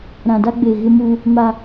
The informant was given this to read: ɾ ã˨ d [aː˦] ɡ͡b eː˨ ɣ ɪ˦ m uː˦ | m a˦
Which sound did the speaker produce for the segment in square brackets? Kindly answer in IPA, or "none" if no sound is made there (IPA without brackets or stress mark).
a˦